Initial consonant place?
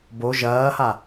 labial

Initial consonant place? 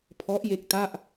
labial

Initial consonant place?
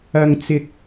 velar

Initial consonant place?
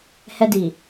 glottal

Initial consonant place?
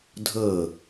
alveolar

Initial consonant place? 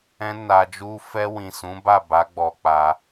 alveolar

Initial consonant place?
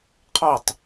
uvular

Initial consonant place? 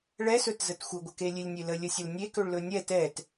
retroflex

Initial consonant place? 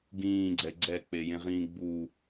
velar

